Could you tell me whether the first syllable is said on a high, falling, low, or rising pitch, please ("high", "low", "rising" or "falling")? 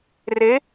rising